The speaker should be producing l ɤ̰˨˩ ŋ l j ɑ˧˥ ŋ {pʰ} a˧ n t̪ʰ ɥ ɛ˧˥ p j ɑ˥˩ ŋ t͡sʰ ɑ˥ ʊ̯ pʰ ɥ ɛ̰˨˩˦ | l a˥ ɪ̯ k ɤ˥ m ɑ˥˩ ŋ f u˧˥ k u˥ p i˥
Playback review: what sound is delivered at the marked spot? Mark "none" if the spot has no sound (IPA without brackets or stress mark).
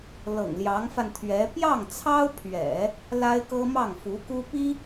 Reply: f